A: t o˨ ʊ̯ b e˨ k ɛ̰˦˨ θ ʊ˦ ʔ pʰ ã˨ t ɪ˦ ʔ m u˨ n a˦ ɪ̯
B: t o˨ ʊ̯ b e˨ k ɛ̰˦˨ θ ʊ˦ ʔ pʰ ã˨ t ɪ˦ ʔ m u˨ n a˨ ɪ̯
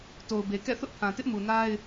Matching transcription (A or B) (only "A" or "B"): A